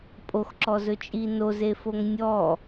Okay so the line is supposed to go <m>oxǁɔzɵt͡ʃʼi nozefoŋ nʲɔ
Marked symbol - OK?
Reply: no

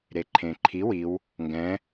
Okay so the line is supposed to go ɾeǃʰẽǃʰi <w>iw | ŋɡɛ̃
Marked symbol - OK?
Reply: yes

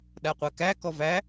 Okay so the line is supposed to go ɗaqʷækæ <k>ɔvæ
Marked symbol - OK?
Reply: yes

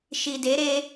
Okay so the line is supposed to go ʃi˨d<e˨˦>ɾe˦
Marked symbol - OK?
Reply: yes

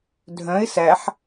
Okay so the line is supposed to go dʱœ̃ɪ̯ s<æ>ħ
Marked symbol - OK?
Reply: yes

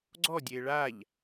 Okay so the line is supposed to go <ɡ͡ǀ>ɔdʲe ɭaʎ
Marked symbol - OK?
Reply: yes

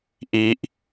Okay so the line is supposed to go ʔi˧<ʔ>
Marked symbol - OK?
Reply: yes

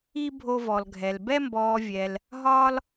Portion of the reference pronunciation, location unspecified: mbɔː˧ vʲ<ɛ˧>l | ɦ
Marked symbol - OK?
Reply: yes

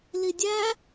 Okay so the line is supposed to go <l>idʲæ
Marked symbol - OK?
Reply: yes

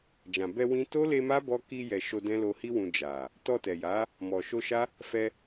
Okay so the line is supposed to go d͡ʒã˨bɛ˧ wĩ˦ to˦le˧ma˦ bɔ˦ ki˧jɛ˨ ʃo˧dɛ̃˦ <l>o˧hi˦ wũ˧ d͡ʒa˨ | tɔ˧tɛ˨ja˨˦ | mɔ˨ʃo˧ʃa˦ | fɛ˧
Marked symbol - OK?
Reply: yes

